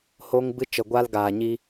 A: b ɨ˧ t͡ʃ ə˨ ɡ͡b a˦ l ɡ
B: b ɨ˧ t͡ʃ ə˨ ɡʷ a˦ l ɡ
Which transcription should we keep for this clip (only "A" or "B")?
B